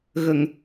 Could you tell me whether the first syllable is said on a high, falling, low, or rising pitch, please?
low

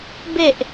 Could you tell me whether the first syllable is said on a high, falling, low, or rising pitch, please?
low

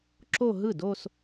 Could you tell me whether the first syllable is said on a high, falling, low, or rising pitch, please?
falling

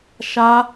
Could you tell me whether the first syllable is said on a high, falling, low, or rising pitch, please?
high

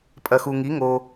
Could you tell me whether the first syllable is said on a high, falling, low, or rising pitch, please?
low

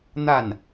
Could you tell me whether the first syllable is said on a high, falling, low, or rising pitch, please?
falling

